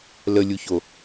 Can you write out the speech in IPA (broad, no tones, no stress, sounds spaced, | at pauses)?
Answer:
l ə lʲ u ç o